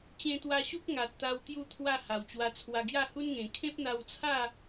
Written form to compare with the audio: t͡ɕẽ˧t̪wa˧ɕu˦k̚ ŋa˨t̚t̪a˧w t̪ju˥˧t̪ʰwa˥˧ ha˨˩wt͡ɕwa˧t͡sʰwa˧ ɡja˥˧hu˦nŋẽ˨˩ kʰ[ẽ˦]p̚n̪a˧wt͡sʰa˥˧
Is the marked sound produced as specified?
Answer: yes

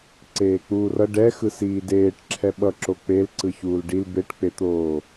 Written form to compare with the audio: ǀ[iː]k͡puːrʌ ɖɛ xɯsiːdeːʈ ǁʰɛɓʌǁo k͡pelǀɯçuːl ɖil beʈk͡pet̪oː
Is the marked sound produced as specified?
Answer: no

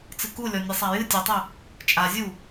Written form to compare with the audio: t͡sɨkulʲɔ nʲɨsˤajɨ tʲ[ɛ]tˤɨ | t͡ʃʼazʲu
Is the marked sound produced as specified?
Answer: no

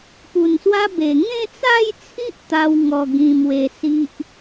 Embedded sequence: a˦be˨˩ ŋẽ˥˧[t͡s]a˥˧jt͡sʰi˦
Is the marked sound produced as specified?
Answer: yes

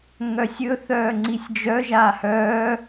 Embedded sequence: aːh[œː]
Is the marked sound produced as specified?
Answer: yes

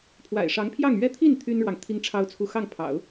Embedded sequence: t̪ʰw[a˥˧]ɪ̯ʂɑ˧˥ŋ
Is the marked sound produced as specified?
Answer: no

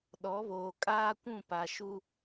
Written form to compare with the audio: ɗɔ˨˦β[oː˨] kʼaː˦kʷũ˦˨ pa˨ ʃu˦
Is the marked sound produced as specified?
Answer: yes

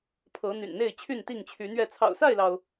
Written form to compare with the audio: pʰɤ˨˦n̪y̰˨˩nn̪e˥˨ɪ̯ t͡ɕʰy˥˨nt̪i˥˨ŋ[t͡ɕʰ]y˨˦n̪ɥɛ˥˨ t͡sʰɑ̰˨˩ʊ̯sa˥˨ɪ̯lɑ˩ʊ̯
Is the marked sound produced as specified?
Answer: yes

